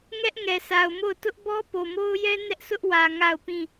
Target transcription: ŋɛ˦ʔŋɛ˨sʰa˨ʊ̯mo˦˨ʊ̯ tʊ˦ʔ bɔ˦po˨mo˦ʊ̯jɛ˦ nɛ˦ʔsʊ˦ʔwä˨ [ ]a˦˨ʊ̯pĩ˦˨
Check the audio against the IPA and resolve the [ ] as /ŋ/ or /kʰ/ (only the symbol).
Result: ŋ